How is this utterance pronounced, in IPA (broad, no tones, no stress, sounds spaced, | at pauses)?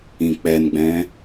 ĩ k͡p ɛ n ɡ͡b ɛ̃